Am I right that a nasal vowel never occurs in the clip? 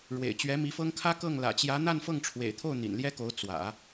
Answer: yes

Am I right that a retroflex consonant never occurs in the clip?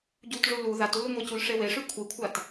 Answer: no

